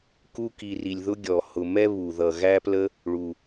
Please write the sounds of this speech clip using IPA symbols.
k u˦ k i˨ r i˩ lʲ ð ʊ˦ ɡʲ ɔ˩ h ʊ˨ m ɛ˥ β u˩ ð ʌ˩ ɣ æ˦ p l ə˦ | ɭ u˩

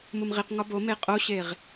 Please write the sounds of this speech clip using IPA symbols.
m u m ʁ i q ŋ ɒ b o m e qʼ o ɕ e ʁ

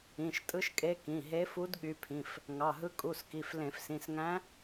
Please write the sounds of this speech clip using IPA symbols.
ĩ˩˧˩ ʃ tʼ ɯ˧˥ ʃ kʼ e˧˥ k ĩ˩˧˩ ɦ e˧˥ f u˧˥ d ɠ y˧˥ pʰ ĩ˩˧˩ f | ŋ ɑ˩˧˩ ɦ ɯ˧˥ kʼ u˩˧˩ s k i˩˧˩ f l ẽ˧˩˧ f s ĩ˩˧˩ s ŋ æ̃˧˥

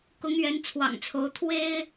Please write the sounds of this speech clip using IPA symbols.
k ʊ˨˦ ŋ ɥ ɛ˨˦ n t͡sʰ w ɑ̰˨˩ ŋ t͡sʰ o˨˦ ʊ̯ t̪ʰ w e˦ ɪ̯

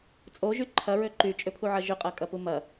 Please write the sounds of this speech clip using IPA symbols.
t͡sʼ o ʒ y ǃʰ ɐ ɹ ø ǃ y t͡ʃʼ ʏ pʰ u ʕ ɐ ʒ ʏ qʼ ɐ kʼ ɐ p u m ɐ

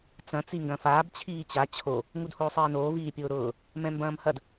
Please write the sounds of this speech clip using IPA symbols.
t͡s ɐ̃ t͡s i ŋ ɡ ɐ̃ f aː b t͡ɕʰ iː t͡ɕ a t͡ɕʰ o | ŋ u d h oː sˤ iː n oː v iː pʲ ʊː ɾ ʊː | m ɛ̃ m b ɐ̃ː m h ɐ d

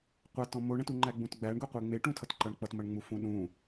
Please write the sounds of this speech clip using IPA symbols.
qʷ a t ɔ̃ m o ɳ ə̃ t u ŋ͡ǃ æ ɡ͡b ũ t ɡ͡b æ ɳ ɡ ʊ qʷ e ŋ͡m e ʈ ũ tʰ ʌ t ǃ ʌ ɳ k͡p ʌ t m ɐ ɳ ŋ͡m u f ũ ɗ ũ

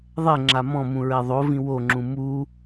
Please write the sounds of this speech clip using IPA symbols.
ðˤ ɛ ŋ͡ǁ a m ɔ̃ m ũ ɹ ɛ ðˤ o v ĩ w o ŋ͡ǁ ũ m u

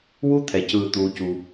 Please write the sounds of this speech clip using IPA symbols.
w u˦ t̪ʰ ɛ˨ c ɯː˨ t̪ uː˦ c uː˦

